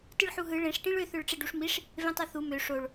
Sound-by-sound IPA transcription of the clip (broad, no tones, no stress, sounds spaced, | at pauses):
t ɯ ɭ ħ u ɦ ɯ ɭ ẽ ʂ ʈ ĩ ɭ ø θ ø ɭ ʈ͡ʂ e ɖ u ʂ m i ʂ | v ẽ tˤ ø θ u m ø ʂ o ɭ